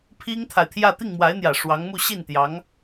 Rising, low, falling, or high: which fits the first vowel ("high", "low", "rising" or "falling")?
high